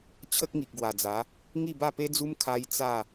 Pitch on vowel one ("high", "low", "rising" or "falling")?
high